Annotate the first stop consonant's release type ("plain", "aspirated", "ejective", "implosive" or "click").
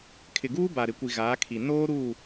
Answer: aspirated